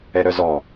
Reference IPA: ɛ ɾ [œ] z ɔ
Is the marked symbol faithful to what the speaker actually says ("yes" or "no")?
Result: yes